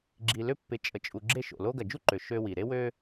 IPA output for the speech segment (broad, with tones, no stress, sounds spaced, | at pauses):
ɡ͡ǁ i˨ l ʏ˦ pː ɪ˨ t͡ʃʼ ə˨ t͡ʃʼ u˨ ɡ͡ǁ e˦ ʃ o̰˩ l o˦ ɡ ɐ˩ d͡ʒ u˥ ǃ ø˩ ʃ ø˦ w i˩ ɾ e˥ w ø˦